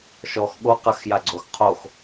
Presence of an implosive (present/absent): present